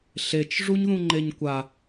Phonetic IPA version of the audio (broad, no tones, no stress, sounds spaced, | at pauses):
ɬ e t͡ʃ ʐ u ɲ ð ũ ŋ͡ǃ e ɲ kʷ a